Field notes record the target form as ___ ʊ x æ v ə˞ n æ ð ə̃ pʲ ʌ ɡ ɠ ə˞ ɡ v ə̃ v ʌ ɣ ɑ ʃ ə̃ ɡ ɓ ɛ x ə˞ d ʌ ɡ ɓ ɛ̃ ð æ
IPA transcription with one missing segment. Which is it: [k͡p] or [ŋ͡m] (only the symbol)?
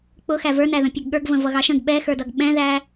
k͡p